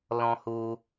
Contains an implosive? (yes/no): no